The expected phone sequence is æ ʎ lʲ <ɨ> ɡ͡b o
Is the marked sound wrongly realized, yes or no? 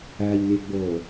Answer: yes